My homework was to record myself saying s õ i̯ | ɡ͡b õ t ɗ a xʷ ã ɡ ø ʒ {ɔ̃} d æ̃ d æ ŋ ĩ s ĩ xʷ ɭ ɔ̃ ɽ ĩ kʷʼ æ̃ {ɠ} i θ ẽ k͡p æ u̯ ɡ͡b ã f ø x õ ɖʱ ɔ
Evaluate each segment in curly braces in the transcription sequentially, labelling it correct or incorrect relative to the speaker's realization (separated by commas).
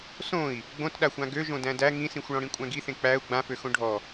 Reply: incorrect, incorrect